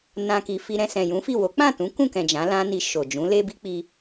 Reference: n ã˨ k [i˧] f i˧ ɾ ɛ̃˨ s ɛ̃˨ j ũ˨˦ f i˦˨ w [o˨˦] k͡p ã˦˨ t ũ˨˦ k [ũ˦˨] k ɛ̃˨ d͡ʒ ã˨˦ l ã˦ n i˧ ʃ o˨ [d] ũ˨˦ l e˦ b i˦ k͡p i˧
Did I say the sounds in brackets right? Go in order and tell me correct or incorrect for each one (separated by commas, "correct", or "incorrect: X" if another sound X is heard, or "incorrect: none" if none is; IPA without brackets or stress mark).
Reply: incorrect: i˨, correct, correct, incorrect: d͡ʒ